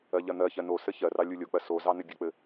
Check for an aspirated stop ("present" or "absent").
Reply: absent